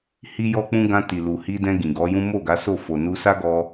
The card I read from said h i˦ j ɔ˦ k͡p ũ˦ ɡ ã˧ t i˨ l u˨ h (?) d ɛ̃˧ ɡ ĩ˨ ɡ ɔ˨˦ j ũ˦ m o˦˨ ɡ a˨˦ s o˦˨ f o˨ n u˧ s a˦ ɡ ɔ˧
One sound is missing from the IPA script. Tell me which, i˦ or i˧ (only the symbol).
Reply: i˧